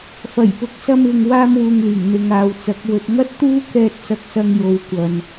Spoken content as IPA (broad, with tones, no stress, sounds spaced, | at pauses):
f ɐ˨˩ j p ʊ˨ k̚ s ɐ˧ m ɪ˨ ŋ w aː˥ m w uː˧ ŋ l iː˨˩ ŋ n̪ ɪ˧ ŋ aː˧ w t͡s ɐ˨˥ k̚ w ɵ˨ t̚ ŋ ɐ˥ t̚ t̪ uː˥ k ɛː˧ t̚ s ɐ˧ k̚ s ɐ˧ ŋ j o˨ w kʷ ɐ˨ n